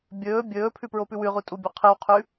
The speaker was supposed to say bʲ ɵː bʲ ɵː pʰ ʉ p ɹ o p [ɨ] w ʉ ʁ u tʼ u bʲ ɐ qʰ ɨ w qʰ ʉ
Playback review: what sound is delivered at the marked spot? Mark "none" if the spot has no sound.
ʉ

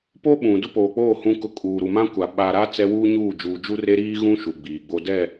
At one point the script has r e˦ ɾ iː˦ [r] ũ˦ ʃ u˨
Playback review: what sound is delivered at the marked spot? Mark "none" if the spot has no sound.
ɣ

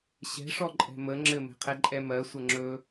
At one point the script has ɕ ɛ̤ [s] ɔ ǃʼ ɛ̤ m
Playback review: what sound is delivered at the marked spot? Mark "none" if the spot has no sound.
ʂ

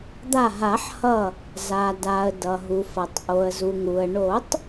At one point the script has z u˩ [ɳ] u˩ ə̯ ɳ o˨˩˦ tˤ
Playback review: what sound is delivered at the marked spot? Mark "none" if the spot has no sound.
ŋ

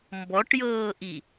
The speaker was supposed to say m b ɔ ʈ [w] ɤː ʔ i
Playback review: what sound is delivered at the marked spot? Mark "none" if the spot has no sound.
j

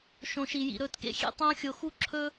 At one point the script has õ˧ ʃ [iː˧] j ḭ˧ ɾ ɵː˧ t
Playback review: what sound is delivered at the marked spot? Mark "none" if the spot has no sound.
i˧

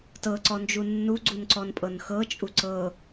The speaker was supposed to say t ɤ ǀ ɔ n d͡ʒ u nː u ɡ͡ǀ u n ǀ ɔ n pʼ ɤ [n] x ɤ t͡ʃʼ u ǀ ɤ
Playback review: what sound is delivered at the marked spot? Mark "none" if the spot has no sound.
n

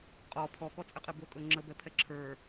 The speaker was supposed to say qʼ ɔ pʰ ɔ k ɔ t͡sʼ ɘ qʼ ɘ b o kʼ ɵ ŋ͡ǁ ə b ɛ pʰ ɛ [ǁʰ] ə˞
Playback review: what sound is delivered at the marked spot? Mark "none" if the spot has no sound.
ǁʰ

